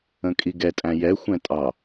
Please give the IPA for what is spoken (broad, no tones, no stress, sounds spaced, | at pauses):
ə̃ kʼ i ɡ ɛ tʼ æ̃ j ɛ xʷ ɛ̃ tʼ ɑ